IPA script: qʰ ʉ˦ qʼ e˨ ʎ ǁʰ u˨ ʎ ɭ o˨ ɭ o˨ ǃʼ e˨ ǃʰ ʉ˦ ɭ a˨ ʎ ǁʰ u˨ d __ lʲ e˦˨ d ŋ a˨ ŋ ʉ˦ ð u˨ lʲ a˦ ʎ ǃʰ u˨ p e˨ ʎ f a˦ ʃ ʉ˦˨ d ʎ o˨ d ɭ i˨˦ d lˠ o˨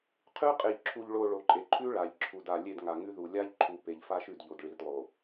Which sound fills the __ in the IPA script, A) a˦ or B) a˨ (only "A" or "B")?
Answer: B